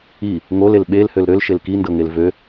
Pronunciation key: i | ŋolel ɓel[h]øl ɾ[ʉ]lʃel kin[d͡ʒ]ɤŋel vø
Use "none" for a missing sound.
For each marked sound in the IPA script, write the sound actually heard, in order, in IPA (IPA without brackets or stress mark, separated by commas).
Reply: h, ø, d